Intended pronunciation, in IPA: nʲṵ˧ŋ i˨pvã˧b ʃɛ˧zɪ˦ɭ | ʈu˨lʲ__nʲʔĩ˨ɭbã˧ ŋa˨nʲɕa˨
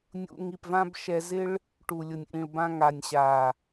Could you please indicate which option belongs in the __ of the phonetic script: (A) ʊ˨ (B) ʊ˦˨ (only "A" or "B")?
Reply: A